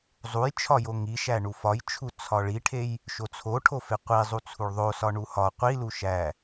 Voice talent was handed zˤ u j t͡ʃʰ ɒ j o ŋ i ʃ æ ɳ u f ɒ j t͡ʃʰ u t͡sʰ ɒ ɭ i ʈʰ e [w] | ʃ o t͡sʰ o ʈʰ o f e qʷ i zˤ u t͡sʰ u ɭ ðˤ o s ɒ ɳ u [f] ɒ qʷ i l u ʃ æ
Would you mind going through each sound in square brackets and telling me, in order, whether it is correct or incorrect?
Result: incorrect, incorrect

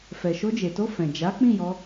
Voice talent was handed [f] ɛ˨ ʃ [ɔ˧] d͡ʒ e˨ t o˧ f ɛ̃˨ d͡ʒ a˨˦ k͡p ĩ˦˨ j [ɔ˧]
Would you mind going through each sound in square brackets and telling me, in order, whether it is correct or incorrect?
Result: correct, incorrect, correct

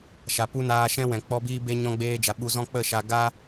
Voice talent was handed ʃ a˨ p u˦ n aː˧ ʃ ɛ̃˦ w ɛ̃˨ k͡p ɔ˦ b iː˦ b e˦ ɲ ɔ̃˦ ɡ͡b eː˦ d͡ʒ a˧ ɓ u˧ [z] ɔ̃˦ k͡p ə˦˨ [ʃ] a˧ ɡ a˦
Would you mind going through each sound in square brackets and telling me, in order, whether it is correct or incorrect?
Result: correct, correct

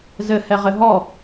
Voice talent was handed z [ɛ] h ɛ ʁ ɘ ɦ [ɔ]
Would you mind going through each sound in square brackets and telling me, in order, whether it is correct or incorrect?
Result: incorrect, correct

